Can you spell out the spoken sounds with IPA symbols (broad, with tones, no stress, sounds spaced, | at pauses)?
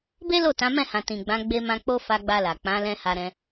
b e˦ l o˦˨ t ã˨˦ m ɛ̃˦˨ h ã˨ t ĩ˨ ɡ͡b ã˨˦ ɡ͡b e˧ m ã˧ k͡p o˦ f a˧ ɡ͡b a˧ l a˨ k͡p ã˨˦ l ɛ̃˧ h a˧ ɾ ɛ̃˧